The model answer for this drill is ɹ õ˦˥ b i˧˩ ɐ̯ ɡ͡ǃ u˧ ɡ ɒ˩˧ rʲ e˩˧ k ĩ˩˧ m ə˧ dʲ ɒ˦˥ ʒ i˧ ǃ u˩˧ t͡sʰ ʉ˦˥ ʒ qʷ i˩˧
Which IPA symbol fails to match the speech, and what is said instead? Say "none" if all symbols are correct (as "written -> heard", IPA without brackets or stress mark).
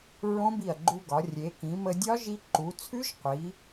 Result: none